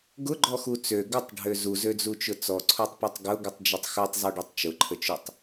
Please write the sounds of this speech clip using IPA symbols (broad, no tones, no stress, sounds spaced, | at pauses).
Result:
ɡ ʊ ɡ͡ǃ ɔ x u t͡s ø ɡ ə tˤ ɖʱ ø z u z ø d͡z u t͡ʃ ʊ t͡s ɔ ǀʰ o tˤ p ɔ tˤ ɡ ʊ ɡ u tˤ d͡ʒ u tˤ x u tˤ zˤ ø ɖ ɔ tˤ t͡ʃ ʊ ǃʰ ə t͡ʃ ʊ tˤ